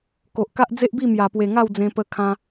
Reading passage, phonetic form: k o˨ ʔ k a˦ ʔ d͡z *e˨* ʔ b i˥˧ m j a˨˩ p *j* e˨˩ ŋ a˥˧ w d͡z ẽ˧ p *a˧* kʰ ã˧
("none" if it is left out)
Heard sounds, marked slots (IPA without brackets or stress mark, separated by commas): e˦, w, ə˧